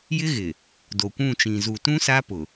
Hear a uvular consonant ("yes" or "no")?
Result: no